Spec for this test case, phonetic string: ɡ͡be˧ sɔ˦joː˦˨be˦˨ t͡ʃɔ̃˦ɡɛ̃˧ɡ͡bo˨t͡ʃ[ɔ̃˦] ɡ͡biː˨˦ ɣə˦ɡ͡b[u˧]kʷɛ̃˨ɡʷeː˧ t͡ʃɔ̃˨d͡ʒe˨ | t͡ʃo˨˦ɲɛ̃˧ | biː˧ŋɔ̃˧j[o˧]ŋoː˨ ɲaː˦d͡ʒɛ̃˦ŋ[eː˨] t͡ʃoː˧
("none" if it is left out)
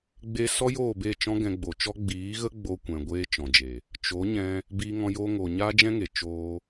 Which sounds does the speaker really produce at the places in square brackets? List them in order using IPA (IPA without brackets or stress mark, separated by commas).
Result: ɔ˦, o˧, oː˧, e˨